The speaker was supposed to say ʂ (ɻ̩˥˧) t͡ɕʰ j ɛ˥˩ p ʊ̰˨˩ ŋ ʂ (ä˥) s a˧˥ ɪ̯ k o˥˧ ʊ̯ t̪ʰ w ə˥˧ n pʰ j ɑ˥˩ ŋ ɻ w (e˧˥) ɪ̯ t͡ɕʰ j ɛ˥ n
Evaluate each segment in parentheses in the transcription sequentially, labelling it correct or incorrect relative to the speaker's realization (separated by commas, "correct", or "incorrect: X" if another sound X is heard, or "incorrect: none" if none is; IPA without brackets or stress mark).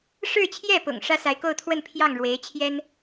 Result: correct, correct, correct